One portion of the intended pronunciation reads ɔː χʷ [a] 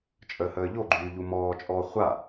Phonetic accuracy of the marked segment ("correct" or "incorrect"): correct